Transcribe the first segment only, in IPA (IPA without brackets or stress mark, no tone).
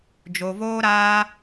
d͡ʒ